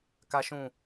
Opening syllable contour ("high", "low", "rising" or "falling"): high